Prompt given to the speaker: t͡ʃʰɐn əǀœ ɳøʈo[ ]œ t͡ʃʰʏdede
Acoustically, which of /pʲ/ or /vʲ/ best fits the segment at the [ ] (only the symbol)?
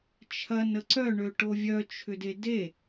vʲ